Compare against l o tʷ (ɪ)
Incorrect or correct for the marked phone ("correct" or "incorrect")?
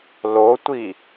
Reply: incorrect